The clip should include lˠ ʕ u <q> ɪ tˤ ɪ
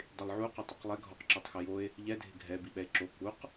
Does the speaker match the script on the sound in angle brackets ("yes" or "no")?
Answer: yes